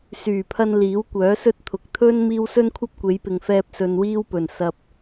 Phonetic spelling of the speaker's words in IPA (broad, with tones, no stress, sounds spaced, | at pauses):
s yː˨˩ pʰ ɐ˧ n l iː˨˥ w kʷ œː˨˥ s ɵ˥ t̚ t̪ʰ ʊ˨ k̚ t̪ʰ ɵ˥ n m iː˥ w s ɵ˥ n kʷʰ ɐ˥ p̚ kʷ e˨˧ j p ɪ˨ ŋ f ɛː˧ p̚ s ɵ˧ n w iː˥ w p ɵ˨˩ n s ɐ˨ p̚